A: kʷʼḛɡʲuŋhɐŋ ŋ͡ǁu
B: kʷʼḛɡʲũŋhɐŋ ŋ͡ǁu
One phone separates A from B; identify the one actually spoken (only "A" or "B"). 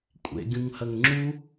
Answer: B